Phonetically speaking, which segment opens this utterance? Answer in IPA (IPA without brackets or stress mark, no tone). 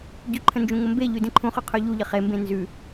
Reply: ɟ